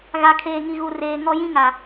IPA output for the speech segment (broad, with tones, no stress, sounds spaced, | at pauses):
ɣ a˨ kʰ eː˨ ŋ i˨ ɣ u˨ r eː˨ ŋ ɔ˦ j ĩ˦ ŋ a˨